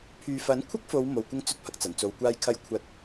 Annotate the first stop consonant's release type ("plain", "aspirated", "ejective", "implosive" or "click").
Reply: aspirated